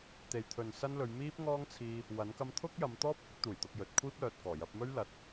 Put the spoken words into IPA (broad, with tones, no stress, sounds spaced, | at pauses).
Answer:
t̪ e˨ j t̪ʰ ɵ˨ n s ɐ˥ n l ɵ˨˧ ɥ m iː˥ p̚ ŋ ɔː˥ ŋ t͡sʰ iː˧ | w ɐ˨˥ n k ɐ˥ m t̪ʰ ʊ˥ k̚ j ɐ˨˧ m t̪ ɔː˥ p̚ h ɪ˥ k̚ t̪ uː˨˩ j t̪ ʊ˧ k̚ j ɵ˨˥ t̚ kʷʰ iː˥ p̚ l œː˨ t̚ k ɔː˨˩ j ɐ˧ p̚ m ɵ˥ ɥ l ɐ˨˥ t̚